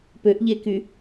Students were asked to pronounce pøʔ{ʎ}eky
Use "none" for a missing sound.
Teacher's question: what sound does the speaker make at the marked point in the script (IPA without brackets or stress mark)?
ʎ